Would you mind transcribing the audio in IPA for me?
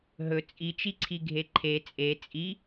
ɦ ɵ t͡sʼ i t͡ʃ i ǀʰ i ɡʱ e ǃʰ e t͡sʼ e t͡sʼ i

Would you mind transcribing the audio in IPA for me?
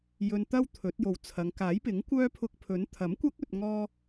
j ɵ˧ n t̪ ɐ˥ w t̪ʰ ɵ˨˥ t̚ j o˨ w t͡sʰ ɐ˨˧ ŋ k aː˨˥ j p ɪ˨˥ ŋ kʷ œː˥ pʰ ʊ˧ k̚ pʰ ɵ˨˥ n t̪ʰ ɐ˨˥ m kʷ ɐ˥ k̚ ɵ˨ t̚ ŋ ɔː˧

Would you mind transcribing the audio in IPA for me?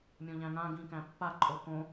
mʲ õ ʎ æ̃ ŋ ã ɡ ĩ k æ̃ pː a ǃʼ o k õ

